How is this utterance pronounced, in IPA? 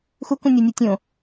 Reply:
x u k ũ nʲ o nʲ o tʲ õ

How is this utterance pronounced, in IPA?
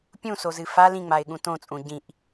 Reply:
pʲ ũ s o z ɨ f a l ĩ ŋ͡m a ɪ̯ ɠ ũ t õ t͡sʼ ũ ɟ ĩ ʔ

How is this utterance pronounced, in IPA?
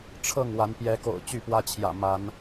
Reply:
ʈ͡ʂʰ ɤ˥˨ ŋ w a˨˦ n p j ɛ˨˦ k o̰˨˩ ʊ̯ t͡ɕ y˥˨ p w ä˦ t͡ɕʰ j ä̰˨˩ m a˨˦ n

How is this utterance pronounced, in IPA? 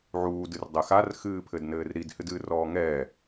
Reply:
ʕ uː d ɨ r dˤ ɘ x a r x ɨː pʰ ɘ d n ɘː r ɾ i d h ɨ d ɨː r ɔː ŋ ɛ

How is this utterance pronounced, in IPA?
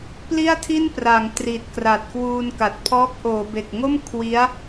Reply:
p l i˥˩ a̯ tʰ i˥˩ n p r a˩˦ ŋ t r i˨˩ t̚ k r a˨˩ t̚ k w uː˧ n k a˨˩ t̚ pʰ ɔː˦˥ k̚ ʔ oː˩˦ b e˨˩ k̚ ŋ o˥˩ m kʰ w i˦˥ a̯

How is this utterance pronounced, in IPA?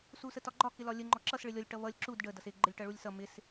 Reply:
s u s ə t ɒ ɡ͡ǃ ɒ k ɪ l ɒ lʲ ə ŋ͡ǃ ɔ ǁ ʌ s ɭ ɪ lʲ ɔ lʲ ʈ ʌ β ʌ lʲ ǁ u d ɖ ə d ʌ s ɪ ɡ͡ǃ ə lʲ ʈ ʌ ɭ u lʲ s ʌ m ɪ s

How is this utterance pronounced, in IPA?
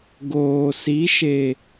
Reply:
ɡ oː˨ s i˨˦ ʃ e˨

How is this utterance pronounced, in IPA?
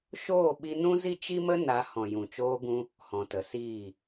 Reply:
ʃ oː˦˨ ɓ i˧ n ũ˦ z i˦ t͡ʃ i˦ m ə˦ n a˨˦ h ɔ̃˨ j ũ˨ t͡ʃ oː˧ ɡ ũ˧ | h ɔ̃˨ t ə˨ s iː˦˨

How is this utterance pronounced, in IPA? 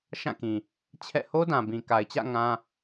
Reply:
ʃ ã˦˨ k ĩ˨ | t͡ɕʰ ɛ̰˦˨ h o˦ d ã˨ b ĩ˨ k a˨ ɪ̯ t͡ɕ ä̰˦˨ ŋ ã˦

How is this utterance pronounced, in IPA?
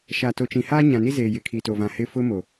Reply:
ʃ a˨ t o˨ t͡ʃ ĩ˨ h aː˦ ɲ ã˨ n i˦ z eː˨ j ɪ˨˦ kʰ i˨ t o˨ v ã˨ h ɪ˦˨ f ʊ˦ m o˨

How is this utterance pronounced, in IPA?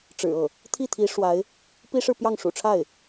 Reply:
ʈ͡ʂ ɻ̩˨˩ ɤ˥˩ | t̪ʰ i˥˩ t̪ʰ i˧˥ ʂ w a˧˥ ɪ̯ | p i˥ ʂ ɻ̩˥˧ p j ɑ˥˩ ŋ ʂ ṵ˨˩ ʈ͡ʂʰ a˥˩ ɪ̯

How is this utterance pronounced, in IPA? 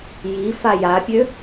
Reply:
j i f a j a pʲ ø

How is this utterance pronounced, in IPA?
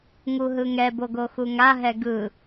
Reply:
ŋ u ɦ ɯ ŋ ɛ b o ɡ o x u ŋ a ɦ ɛ ɡ ɯ

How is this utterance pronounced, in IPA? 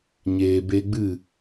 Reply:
ɲ eː˨ b e˧ ɡ͡b ɨ˦˨

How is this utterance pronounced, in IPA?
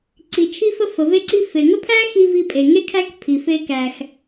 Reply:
ǀ i˩ t͡ʃʰ i˧ f ə˧ f ə˩ v e˧ ǀ i˧ f e˩ ŋ ə˥ pʰ æ˥ x i˧ v i˧ pʼ e˩ ŋ e˥ kʰ æ˥ k pʰ i˩ f e˧ k æ˩ x

